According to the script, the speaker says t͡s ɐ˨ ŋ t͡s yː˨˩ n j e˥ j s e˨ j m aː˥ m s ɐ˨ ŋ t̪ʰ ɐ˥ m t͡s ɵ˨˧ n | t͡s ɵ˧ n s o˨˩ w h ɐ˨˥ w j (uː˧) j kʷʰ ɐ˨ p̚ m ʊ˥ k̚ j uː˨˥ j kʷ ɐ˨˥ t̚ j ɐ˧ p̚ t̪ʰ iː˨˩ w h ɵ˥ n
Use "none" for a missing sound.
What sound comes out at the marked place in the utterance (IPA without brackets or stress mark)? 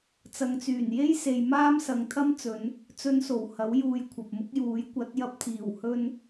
uː˧